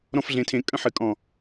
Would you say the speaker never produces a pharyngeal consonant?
no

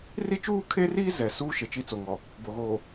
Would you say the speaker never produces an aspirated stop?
no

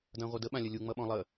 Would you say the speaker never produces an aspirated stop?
yes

